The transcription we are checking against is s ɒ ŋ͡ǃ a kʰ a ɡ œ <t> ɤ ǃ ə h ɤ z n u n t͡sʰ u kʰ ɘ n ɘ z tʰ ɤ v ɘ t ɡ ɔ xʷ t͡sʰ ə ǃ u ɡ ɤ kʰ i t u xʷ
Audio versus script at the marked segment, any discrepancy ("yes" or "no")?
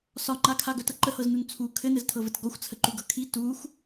no